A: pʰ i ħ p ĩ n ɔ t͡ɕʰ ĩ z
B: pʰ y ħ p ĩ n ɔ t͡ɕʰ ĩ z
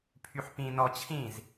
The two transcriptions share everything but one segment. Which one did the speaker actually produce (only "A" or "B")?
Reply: B